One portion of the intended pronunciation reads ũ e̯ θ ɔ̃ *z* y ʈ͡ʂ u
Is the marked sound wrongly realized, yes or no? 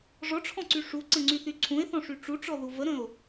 yes